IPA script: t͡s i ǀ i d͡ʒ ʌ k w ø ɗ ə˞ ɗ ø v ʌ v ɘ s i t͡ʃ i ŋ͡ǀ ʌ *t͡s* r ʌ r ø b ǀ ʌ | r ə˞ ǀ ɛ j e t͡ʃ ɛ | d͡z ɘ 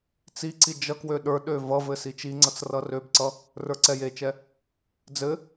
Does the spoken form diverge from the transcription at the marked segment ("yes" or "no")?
no